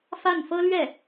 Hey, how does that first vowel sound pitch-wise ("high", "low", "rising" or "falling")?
falling